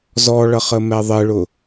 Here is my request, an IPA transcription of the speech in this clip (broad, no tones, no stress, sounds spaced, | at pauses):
z ɔ ɭ ʌ χ ə m ɛ ðˤ ɪ ɭ ʊ